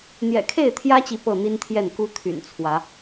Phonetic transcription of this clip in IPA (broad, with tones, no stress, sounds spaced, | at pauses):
n̪ j ɛ̰˨˩ kʰ e˥˨ ɪ̯ t̪ʰ j ä˦ t͡ɕ i˨ p ɤ˥˨ n̪ i˦ n t̪ʰ j ɛ˥˨ n k u˦ t̪ʰ y̰˨˩ n t͡sʰ w ä˨˦